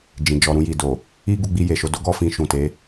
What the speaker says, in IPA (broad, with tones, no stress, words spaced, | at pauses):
d͡ʒĩ˨ d͡ʒɔ˨ɾũ˧ji˨do˨ | i˦ɡu˧ɡ͡bi˧ je˨ʃo˨˦ do˦ɡɔ˧ fĩ˧ʃũ˨te˨˦